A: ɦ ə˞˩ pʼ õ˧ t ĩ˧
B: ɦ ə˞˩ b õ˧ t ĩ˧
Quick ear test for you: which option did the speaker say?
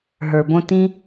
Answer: B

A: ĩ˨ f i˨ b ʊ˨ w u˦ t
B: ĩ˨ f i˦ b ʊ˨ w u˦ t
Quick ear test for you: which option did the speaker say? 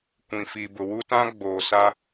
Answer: A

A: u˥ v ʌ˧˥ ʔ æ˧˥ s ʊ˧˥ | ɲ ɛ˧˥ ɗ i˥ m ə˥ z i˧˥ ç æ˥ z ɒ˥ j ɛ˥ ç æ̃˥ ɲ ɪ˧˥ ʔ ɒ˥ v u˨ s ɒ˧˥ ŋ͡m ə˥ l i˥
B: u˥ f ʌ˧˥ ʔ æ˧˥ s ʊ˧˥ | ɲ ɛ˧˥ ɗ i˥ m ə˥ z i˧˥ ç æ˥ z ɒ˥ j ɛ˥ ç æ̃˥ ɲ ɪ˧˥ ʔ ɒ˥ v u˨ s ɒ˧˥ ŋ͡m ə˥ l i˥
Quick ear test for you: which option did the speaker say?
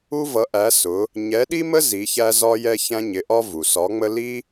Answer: A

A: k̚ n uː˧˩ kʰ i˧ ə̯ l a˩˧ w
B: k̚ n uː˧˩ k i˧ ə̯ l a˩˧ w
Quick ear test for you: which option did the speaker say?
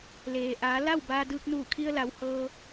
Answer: A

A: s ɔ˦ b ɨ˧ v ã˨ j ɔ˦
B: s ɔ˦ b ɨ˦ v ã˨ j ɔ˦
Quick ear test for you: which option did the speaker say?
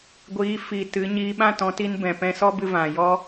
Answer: A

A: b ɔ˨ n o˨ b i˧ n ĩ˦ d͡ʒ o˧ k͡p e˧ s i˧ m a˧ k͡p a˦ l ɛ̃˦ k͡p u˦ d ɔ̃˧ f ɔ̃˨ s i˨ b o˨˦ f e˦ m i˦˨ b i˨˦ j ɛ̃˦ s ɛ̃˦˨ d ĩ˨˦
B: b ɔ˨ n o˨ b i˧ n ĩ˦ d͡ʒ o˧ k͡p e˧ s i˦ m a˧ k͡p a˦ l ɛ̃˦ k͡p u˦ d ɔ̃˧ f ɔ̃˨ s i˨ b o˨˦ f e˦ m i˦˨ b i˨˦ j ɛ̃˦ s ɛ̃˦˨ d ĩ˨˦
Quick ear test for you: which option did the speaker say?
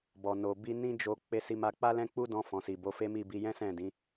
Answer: A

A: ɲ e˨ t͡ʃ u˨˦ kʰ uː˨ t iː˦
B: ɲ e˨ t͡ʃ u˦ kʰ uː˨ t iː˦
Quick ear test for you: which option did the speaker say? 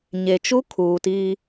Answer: B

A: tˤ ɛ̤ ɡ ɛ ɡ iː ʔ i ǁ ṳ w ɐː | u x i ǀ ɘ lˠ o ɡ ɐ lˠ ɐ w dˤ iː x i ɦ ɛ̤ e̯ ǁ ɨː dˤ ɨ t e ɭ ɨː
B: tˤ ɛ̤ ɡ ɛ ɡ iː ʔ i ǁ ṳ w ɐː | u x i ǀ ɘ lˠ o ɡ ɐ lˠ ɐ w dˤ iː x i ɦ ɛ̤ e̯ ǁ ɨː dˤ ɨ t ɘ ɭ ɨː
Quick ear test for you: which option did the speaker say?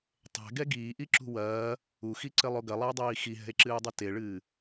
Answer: A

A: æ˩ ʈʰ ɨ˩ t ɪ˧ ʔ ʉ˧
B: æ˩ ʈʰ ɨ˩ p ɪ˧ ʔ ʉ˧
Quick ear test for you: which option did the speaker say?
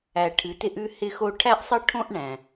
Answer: A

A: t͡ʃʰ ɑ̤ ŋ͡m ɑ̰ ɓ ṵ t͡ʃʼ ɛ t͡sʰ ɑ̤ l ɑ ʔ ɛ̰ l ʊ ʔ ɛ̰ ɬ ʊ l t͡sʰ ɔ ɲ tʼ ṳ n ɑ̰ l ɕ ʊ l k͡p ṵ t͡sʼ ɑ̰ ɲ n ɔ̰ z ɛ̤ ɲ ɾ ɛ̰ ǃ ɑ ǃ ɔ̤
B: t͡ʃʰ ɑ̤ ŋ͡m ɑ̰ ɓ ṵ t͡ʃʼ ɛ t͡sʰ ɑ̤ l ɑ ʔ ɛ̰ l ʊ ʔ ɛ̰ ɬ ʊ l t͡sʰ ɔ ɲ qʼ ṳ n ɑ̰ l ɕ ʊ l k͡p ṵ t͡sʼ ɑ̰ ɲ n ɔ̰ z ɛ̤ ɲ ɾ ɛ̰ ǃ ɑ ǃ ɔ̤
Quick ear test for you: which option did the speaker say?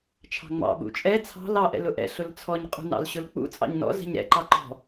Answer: B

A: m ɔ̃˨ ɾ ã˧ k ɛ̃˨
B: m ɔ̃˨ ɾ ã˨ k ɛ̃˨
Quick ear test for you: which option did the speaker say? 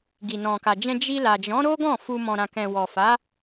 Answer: B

